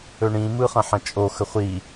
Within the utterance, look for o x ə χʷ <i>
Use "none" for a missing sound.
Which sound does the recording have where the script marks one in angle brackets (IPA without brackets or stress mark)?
i